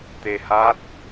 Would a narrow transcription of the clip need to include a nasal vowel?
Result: no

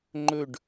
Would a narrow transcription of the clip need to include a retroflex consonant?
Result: yes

